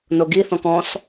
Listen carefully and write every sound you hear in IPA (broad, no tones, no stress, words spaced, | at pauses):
noɡiθɔ̃k ɔ̃s